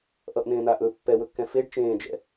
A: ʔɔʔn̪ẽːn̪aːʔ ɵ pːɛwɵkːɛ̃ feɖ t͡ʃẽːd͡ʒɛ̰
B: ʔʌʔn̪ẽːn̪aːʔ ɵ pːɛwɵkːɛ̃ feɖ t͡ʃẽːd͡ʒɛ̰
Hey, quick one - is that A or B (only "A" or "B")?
B